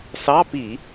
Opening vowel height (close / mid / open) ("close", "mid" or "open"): open